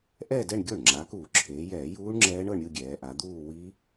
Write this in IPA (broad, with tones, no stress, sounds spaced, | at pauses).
ʔ ɛ˥˧ d ɛ˥˧ ɳ ɡʲ o˥˩ ɳ ŋ͡ǁ a˩˧ k uː˧˩˧ ǁʰ eː˩˧ j ɛː˧˩˧ j uː˦˥ ɳ ŋ͡ǁ ɛː˦˥ ɳ ɤ˥˧ ɳ ɾʲ ɯ˥˧ ɡʲ ɛː˩˧ ʔ a˩˧ d̪ uː˥˧ w i˦˥